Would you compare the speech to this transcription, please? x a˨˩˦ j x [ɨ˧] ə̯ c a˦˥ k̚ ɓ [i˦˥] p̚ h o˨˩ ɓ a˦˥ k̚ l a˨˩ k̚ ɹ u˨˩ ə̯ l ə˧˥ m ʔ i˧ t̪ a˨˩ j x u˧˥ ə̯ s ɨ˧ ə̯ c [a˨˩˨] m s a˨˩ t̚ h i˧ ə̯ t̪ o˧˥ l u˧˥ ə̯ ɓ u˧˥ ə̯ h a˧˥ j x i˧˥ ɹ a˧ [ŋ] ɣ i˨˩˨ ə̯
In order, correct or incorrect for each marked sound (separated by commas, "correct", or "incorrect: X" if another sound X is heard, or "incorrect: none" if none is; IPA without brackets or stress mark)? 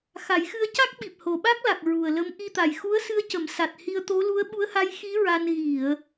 correct, incorrect: i˨˩, incorrect: ə˨˩˨, incorrect: n